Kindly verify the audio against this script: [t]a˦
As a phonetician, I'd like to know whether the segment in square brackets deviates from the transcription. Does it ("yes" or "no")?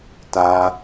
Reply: no